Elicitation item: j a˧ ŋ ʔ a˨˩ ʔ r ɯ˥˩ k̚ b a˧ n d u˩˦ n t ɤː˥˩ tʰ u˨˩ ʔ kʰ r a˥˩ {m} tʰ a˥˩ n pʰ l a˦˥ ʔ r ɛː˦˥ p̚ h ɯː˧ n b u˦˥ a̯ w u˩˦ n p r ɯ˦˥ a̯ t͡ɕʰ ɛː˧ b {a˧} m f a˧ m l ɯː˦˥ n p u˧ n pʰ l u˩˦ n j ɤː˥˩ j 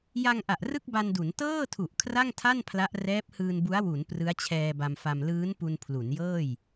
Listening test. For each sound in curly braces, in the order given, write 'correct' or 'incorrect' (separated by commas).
incorrect, correct